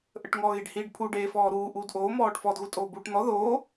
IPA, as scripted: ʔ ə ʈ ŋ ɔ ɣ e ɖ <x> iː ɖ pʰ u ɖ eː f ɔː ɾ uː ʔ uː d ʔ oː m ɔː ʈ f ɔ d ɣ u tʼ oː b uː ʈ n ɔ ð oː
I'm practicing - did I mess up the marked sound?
yes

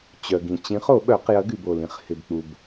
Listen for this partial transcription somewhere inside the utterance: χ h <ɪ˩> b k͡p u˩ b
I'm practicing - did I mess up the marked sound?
no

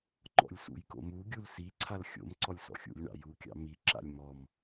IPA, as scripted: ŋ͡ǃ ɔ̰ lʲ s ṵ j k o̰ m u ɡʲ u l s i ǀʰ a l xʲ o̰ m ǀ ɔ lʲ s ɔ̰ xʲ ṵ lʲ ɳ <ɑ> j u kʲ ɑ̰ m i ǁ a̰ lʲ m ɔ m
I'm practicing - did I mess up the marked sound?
yes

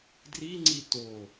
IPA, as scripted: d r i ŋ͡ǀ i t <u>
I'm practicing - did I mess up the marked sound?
yes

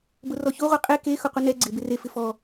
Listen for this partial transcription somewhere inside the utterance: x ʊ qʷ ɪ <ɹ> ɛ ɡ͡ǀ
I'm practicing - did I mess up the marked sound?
yes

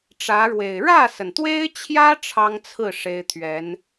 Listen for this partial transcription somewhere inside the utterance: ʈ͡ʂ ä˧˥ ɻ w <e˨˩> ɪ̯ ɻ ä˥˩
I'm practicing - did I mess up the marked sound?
no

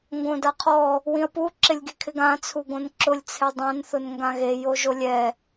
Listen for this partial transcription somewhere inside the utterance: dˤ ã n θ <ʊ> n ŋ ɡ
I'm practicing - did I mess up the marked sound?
no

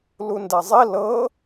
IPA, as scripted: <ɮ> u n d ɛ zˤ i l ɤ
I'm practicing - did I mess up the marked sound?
yes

